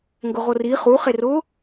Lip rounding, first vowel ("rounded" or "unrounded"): rounded